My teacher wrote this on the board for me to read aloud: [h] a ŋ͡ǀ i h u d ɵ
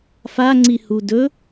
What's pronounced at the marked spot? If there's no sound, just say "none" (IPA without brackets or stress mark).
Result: f